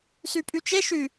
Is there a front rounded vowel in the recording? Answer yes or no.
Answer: yes